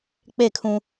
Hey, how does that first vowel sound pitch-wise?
falling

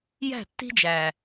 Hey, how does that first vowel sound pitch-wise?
falling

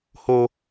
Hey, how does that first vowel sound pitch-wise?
high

